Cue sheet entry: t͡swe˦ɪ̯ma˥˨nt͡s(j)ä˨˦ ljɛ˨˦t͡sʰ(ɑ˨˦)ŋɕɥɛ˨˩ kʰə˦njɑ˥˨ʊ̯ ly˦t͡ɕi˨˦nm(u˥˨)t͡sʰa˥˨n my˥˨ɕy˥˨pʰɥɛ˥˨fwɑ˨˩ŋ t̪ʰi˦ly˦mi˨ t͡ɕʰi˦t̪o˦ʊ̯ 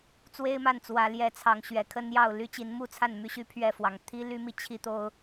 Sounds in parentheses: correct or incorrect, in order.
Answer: incorrect: w, correct, correct

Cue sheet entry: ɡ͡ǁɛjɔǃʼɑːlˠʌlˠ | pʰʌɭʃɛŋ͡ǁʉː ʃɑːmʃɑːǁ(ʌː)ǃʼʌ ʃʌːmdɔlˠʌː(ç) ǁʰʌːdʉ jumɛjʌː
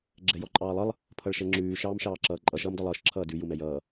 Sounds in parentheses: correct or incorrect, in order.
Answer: correct, incorrect: ʃ

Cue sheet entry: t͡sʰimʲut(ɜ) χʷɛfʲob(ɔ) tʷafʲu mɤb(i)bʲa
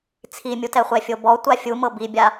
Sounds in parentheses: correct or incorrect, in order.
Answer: incorrect: ɛ, correct, correct

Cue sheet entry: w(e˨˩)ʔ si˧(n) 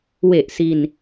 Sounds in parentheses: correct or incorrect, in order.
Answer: correct, correct

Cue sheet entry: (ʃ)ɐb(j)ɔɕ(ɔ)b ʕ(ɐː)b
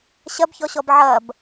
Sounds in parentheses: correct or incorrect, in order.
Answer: incorrect: ɕ, incorrect: ç, correct, correct

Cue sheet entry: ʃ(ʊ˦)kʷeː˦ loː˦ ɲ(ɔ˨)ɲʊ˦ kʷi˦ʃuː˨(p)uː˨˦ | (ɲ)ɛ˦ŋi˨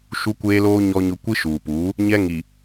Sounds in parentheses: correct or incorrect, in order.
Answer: incorrect: u˦, incorrect: ɔ˦, correct, correct

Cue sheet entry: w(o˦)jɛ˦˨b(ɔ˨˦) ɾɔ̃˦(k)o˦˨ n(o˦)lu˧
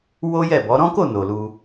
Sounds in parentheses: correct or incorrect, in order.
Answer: correct, correct, correct, incorrect: o˨

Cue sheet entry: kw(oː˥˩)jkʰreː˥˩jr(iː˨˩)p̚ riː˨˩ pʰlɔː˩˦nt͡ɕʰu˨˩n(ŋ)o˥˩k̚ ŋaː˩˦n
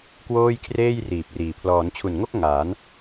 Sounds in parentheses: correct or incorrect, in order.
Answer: correct, correct, correct

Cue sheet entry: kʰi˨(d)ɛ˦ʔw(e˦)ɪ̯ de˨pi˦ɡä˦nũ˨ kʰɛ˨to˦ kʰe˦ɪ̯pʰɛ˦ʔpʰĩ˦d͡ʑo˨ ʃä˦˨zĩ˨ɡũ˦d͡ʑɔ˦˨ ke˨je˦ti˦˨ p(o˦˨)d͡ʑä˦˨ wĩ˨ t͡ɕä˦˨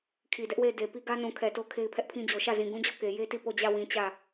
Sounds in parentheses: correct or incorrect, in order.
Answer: correct, incorrect: e˦˨, correct

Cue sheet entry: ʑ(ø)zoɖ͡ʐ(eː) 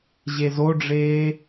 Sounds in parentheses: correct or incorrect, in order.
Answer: incorrect: e, correct

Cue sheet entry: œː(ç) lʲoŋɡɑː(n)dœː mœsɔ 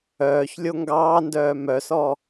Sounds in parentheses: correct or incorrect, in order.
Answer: correct, correct

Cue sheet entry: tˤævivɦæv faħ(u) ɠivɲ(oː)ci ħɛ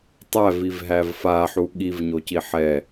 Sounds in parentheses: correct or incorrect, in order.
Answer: correct, incorrect: o

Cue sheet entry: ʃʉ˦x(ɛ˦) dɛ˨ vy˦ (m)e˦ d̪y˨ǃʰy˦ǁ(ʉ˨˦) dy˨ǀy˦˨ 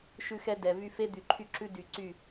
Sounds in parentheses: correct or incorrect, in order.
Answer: correct, incorrect: f, incorrect: ʉ˦

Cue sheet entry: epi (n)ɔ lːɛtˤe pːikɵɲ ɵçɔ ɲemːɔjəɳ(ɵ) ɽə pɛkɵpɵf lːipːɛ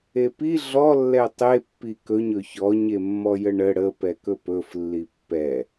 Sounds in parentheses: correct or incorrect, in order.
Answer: incorrect: ɮ, incorrect: ə

